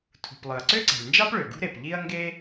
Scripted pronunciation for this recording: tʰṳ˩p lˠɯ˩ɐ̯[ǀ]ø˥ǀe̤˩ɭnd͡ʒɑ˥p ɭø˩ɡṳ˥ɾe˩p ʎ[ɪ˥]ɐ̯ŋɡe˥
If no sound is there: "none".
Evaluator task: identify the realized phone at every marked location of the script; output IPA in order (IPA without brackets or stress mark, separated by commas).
ǀ, i˥